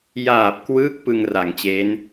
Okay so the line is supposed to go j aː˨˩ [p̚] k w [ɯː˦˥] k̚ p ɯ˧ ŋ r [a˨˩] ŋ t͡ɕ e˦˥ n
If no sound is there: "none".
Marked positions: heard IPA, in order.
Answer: p̚, ɯː˦˥, a˩˦

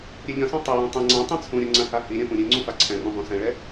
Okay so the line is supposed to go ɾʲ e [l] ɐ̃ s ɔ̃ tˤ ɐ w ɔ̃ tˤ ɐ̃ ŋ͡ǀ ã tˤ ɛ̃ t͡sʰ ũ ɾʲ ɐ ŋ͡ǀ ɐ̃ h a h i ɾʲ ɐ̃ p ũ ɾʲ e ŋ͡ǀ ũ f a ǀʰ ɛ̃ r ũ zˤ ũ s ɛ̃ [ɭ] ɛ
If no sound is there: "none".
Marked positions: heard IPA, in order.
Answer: ʎ, ɭ

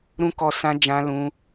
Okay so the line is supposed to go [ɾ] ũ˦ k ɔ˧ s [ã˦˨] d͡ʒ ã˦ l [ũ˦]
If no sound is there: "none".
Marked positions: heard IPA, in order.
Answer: ɾ, ã˧, ũ˦

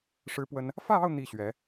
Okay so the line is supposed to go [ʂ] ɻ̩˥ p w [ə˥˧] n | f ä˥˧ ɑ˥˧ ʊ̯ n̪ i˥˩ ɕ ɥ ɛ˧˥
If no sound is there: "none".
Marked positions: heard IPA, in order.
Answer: ʂ, ə˥

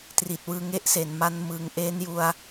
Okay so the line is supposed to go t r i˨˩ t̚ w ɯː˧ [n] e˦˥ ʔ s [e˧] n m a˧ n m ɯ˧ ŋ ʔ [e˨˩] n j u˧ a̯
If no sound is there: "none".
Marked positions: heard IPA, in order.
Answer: ŋ, e˩˦, e˦˥

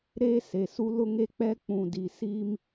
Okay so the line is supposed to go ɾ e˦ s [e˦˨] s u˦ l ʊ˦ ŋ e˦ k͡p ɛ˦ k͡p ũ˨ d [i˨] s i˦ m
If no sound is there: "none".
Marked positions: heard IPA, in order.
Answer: e˨, i˨

